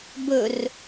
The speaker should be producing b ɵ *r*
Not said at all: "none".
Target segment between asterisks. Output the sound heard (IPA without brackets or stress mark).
r